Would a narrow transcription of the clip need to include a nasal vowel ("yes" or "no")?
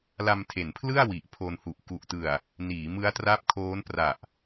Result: no